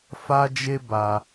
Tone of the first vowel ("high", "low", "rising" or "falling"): high